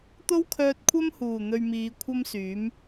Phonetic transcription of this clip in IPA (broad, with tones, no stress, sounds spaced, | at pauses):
t̪ o˥ w kʰ œː˧ t̚ kʷʰ ɐ˥ m h uː˨˩ n̪ ɵ˧ ɥ m iː˨˧ kʷʰ ɐ˥ m s yː˨˥ m